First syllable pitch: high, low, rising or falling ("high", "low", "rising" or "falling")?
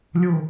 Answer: falling